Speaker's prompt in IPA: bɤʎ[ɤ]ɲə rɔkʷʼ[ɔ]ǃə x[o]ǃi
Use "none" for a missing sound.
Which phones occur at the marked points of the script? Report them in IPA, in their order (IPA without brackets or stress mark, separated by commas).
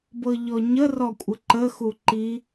ɔ, ə, u